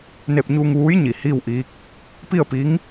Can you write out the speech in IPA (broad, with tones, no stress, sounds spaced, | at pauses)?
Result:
n e˧ p̚ ɲ uː˧ ŋ ʋ uː˧˥ j ɲ i˩ h iː˥˨ w ʔ iː˧˥ k̚ | p i˥˨ ə̯ p i˧˥ ŋ